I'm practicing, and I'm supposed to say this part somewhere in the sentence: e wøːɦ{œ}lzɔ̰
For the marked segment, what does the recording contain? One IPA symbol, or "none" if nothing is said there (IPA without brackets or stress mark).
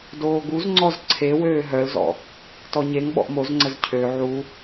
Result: œ